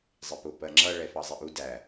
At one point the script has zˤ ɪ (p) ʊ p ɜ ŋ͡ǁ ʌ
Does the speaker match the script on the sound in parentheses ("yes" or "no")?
yes